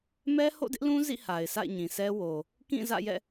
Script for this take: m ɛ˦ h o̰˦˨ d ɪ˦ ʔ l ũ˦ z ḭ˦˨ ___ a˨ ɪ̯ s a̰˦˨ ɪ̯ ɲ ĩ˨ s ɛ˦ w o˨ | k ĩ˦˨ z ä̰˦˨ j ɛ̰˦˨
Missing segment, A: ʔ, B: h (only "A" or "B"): B